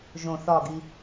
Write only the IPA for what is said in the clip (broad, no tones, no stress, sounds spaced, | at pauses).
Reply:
ʒ õ θ ɒ ɡ i